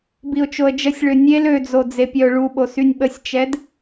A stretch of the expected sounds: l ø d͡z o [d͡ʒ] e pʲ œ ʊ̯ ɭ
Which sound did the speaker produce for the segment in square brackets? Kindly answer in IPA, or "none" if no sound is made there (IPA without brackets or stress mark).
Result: d͡z